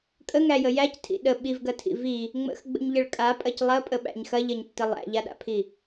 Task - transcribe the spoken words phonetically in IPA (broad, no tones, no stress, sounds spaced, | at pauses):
kʼ ə ŋ æ j ə j æ c tʰ ḭ ɗ ə ɓ i v ɡ ɐ tʰ ḭ v i | ŋ͡m ə̰ x ɡ͡b ə̰ ɲ ʎ ə ɭ kʼ a pʼ ɐ c lˠ ɐ pʼ ə ɓ æ̰ ɲ x ɐ ʎ ɐ ɲ tː ə lˠ æ̰ ʎ a ɗ a̰ pʰ i